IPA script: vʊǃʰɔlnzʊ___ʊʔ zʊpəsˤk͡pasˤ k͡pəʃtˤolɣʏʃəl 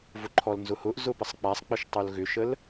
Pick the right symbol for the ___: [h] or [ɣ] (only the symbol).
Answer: h